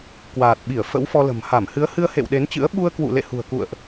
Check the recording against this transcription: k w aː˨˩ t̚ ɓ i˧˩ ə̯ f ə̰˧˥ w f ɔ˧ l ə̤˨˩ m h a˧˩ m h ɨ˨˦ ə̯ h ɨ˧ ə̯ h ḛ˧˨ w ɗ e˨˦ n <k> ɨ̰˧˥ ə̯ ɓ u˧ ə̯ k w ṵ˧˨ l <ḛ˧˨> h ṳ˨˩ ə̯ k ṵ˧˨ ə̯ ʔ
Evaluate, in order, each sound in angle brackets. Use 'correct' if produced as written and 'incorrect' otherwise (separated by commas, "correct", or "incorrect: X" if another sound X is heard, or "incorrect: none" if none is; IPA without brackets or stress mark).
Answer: incorrect: t͡ɕ, correct